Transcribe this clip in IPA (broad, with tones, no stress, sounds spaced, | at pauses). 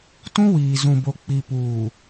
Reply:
t ũ˦ w iː˨ z ũ˨ b o˨ k͡p i˨ p uː˨